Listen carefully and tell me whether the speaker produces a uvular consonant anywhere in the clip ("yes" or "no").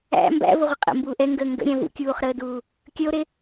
yes